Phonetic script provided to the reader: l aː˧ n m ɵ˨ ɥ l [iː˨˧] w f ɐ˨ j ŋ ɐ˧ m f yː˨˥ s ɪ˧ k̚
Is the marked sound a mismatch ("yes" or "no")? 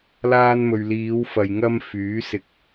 no